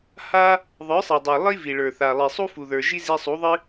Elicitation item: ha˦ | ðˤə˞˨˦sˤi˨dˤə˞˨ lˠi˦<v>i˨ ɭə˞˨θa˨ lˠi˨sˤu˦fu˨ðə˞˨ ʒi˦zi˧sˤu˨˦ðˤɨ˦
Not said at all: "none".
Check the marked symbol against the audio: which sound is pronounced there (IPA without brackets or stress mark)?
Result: v